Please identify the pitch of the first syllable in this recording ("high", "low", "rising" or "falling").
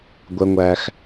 high